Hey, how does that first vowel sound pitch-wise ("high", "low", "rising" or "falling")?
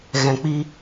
low